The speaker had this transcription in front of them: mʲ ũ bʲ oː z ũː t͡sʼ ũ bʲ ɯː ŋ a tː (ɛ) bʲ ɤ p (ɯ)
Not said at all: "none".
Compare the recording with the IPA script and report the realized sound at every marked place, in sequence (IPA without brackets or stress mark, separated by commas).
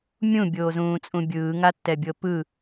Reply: ɛ, ɯ